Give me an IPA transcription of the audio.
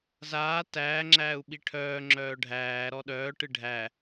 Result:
z aː t æː ŋ͡ǁ æː u̯ ɓ i ʈʰ œː ŋ͡ǁ œː ɖʱ æː ɾ ɔ ɗ œː ʈ ɨ ɖʱ æ

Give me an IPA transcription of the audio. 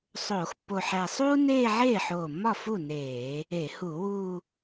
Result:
sˤ oː˧˩˧ x pː o˧˩ ħ æ˧˩ sˤ uː˥ n eː˥˧ ʕ eː˥˩ ħ oː˧˩ mː ɒ˥˩ f u˥˩ n eː˧˩˧ | e˧˩˧ h u˧˩˧ w uː˥˧

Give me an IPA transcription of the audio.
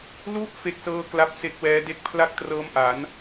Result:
l u˦˥ ʔ f e˥˩ k̚ s ɤː˥˩ k l a˦˥ p̚ s e˦˥ k̚ w ɛː˦˥ d e˥˩ k̚ pʰ l a˥˩ k̚ t r ɤː˦˥ m ʔ a˩˦ n

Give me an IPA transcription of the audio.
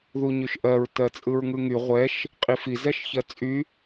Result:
ð u ɲ y ʃ ʔ ɜ ɹ t ɜ t͡sʼ ɯ ɹ ŋ ɯ ŋ y ʁʷ ɛ ʃ | qʼ i f i z ɛ ʃ ç ɜ t͡sʼ y

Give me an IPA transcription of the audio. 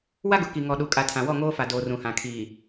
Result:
w a˦ ɡ ʊ˨ k i˨ ŋ ɔ˨ ɗ u˨ kʼ a˨ tʰ ã˨ w ɔ˦˨ ŋ oː˦ f a˨ d oː˨ r ũ˨ h ã˨ kʰ iː˨

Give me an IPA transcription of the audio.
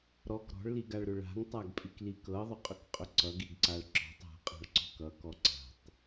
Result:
ɾ ɔ k ɾ ɔ̤ ɭ l i ɡ a ɭ ɾ ʏ ɭ a̤ ŋ tˤ a ɡ pʼ i k l i k ɤ ðˤ ʏ qʼ ʏ k qʼ ʏ ǀ ʌ ɡ i ɡ ǀ a ɭ ǁ ɔ̤ tˤ a̤ qʼ a̤ ɭ ǀ ɔ̤ k ʌ k ɔ ǀ a̤ tˤ

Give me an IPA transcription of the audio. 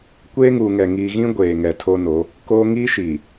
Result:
kʷ eː˦ ŋ uː˨ ŋ ɛ˨ ŋ iː˨ ɣ ĩ˦ ɡʷ eː˨ ŋ ɛ˨ tʰ o˦ n o˨˦ | k oː˦ ŋ i˦ ʃ i˨

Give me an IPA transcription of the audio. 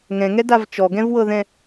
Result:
ŋ ɛ̃ ŋ ɛ d a v t͡ʃ ɔ ɡ ɛ̃ v w ɤ ð ɛ̃

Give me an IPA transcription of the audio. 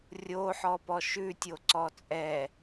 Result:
rʲ o ħ ɔ p ɔ ʃ ʉ tʲ o ǀ ɔ t͡sʼ ɛ

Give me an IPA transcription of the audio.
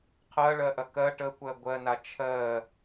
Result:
qʰ ɜ ɭ ɜ ʔ ɐ k ɜ ʈ ə kʷ ɜ ɡʷ ɜ n a t͡ʃʰ ɜ

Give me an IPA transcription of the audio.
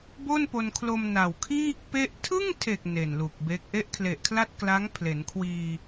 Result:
b o˥˩ n p o˧ n kʰ l o˧ m n a˨˩ w kʰ iː˥˩ k̚ p e˥˩ ʔ tʰ ɯ˥˩ ŋ tʰ e˨˩ k̚ n e˨˩ n l u˨˩ k̚ b e˦˥ k̚ ʔ e˦˥ ʔ kʰ l e˨˩ ʔ kʰ l a˥˩ t̚ k l a˦˥ ŋ pʰ l e˩˦ n kʰ w iː˧

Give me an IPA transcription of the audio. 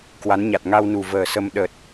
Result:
k w a˨˦ n ɲ a˨˩ t̚ ŋ a˧ w n u˨˩ v əː˨˩ s ə˧ m ɗ ə˨˩ t̚

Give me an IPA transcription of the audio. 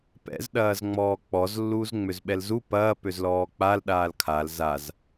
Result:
p ɛ̰ z ɗ ɐː z ŋ͡m ɔː k͡p ɔ z lː uː z ŋ͡m ø z ɓ ɛ l z u p ɐː p ø z l ɔː k͡p a l ɗ aː l kʰ a l z a z

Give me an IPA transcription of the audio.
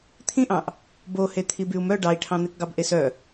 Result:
t̪ʰ ĩ ʔ ɑ̃ ʔ | b o h e t̪ʰ i b y u̯ m œ ɖ ɑ i̯ ʈʰ ɑ̃ n̪ e k ɡ ɑ b ʔ e s œ

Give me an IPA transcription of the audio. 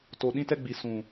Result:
t o˨ ɗ ĩ˧ t ɛ˧ ɡ͡b i˨ s ũ˨

